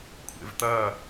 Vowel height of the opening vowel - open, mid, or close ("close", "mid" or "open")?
mid